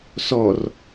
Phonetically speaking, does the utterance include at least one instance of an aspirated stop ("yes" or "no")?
no